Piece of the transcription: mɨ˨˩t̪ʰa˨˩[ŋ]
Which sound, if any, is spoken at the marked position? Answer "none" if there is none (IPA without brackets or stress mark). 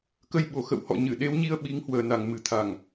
ŋ